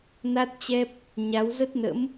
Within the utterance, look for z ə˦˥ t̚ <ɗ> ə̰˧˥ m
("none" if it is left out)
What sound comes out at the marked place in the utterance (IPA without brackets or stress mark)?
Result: n